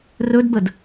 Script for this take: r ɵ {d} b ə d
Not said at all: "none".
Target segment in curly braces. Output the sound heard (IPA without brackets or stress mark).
d